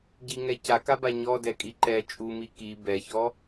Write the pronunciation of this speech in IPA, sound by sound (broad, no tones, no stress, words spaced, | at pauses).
ɟiŋɛ cakaba ɲɔdɛkʼi ǃɛ t͡ʃʼumi ki bɛçɔ